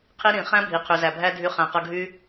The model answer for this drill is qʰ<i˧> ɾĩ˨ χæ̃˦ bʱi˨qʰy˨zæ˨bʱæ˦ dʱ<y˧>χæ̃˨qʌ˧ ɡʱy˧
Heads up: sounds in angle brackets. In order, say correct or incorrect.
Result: incorrect, correct

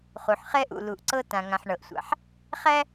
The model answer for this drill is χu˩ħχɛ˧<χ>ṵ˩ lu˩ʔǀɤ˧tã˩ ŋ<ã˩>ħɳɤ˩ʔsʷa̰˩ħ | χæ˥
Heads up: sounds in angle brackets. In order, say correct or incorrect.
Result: incorrect, correct

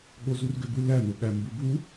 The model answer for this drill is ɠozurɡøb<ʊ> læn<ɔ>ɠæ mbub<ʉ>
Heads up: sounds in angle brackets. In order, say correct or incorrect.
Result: incorrect, incorrect, incorrect

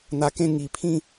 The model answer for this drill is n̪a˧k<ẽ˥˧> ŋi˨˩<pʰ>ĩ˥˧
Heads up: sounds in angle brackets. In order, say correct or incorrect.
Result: correct, correct

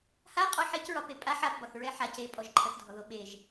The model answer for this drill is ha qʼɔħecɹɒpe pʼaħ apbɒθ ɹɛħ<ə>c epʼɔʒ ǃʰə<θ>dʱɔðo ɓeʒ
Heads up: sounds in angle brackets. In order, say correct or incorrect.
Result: incorrect, correct

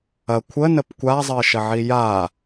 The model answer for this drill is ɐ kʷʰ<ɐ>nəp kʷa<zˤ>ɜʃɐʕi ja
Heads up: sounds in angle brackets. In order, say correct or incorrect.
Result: incorrect, correct

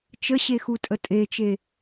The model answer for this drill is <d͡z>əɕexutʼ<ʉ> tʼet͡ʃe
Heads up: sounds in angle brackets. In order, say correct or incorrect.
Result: incorrect, incorrect

